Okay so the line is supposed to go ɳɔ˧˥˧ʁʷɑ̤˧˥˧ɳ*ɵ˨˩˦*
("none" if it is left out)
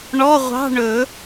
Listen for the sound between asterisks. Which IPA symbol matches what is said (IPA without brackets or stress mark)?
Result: ɵ˨˩˦